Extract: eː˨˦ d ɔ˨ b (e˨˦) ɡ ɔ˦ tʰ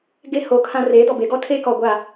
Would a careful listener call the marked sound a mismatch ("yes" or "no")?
no